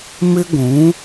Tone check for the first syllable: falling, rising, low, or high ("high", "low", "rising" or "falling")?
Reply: high